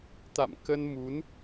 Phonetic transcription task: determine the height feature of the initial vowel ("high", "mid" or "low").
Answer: low